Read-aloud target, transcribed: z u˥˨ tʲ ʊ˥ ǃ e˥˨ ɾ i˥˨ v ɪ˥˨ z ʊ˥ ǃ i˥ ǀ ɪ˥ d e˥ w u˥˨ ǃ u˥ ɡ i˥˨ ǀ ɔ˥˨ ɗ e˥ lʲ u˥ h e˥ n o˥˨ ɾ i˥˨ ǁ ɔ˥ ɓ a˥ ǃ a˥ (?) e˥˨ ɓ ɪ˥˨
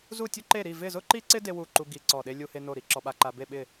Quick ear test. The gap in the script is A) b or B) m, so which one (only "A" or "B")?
A